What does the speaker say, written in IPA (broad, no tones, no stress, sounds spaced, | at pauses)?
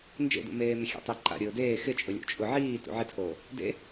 n d͡ʒ ḛ d ṵ m eː m ɪ xʲ ḛ tˤ i ǃ a̰ ɾʲ ʊː d eː x ɪ t͡ʃʼ ʊ lʲ o̰ t͡ʃʼ ʊ ʕ iː t ṵ ʕ ɪ tʰ oː | d ḛ